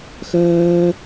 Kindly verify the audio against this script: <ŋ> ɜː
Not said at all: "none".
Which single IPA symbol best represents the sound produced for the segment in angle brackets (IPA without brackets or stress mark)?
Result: x